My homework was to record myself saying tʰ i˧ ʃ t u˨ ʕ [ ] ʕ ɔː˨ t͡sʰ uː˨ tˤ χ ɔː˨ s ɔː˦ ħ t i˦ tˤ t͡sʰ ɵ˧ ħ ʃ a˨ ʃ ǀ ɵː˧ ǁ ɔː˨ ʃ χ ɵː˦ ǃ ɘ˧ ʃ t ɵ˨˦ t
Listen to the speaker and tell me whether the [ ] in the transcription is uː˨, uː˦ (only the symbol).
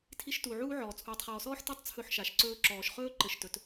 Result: uː˦